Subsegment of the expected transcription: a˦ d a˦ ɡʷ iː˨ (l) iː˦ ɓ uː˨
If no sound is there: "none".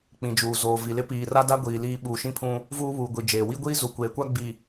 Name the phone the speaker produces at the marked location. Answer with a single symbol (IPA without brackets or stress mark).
l